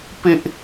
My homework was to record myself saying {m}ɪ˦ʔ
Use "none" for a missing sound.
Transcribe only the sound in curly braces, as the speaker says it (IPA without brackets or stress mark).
p